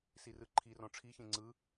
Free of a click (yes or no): no